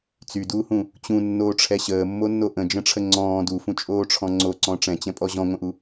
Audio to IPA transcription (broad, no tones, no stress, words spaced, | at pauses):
t͡syduːhũ | t͡ɕũnːoːʈ͡ʂʰɛ ɕəːmːonːo ʔə̃d͡ʒə̃ʈ͡ʂʰə ŋ͡ǀɔ̃ː dufũt͡ʃʼoːʈ͡ʂʰɔ̃ ŋ͡ǀoǀɔ̃ ʈ͡ʂɛ̃t͡ɕɛ̃pʼɔ ʑɔ̃ŋʷə̃ʔu